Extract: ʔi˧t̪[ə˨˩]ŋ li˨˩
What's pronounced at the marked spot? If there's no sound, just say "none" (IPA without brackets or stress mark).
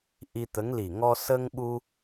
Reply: ə˧˥